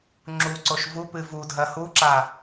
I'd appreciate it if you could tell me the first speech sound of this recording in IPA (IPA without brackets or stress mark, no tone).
ŋ͡ǁ